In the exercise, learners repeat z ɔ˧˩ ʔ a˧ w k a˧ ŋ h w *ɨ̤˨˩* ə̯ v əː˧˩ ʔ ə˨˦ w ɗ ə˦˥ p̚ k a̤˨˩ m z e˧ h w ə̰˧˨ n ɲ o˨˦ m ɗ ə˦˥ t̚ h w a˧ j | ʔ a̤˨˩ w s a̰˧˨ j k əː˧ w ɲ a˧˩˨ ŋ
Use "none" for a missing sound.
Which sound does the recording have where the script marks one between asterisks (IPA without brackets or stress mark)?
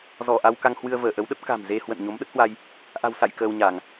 ɨ˧